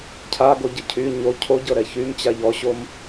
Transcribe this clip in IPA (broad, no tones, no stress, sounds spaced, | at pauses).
cʰ a ɡ o ɟ ə cʰ y ɲ o cʰ o ɟ ɤ ɾ ɛ ç y m t͡ɕ a ʎ ɔ ɕ o m